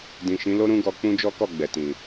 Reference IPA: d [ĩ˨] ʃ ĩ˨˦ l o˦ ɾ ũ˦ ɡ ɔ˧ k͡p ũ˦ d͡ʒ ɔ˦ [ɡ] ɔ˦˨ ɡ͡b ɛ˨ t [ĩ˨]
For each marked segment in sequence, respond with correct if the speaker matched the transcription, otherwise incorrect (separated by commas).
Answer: correct, incorrect, correct